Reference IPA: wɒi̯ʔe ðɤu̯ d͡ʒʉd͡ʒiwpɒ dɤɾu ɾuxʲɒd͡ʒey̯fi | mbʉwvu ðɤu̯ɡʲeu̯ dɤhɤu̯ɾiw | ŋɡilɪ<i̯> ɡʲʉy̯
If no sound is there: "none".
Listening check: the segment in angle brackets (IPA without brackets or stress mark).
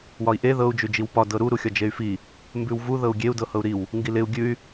u̯